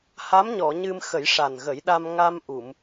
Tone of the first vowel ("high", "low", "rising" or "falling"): rising